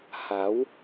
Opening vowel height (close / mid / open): open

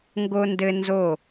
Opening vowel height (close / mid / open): mid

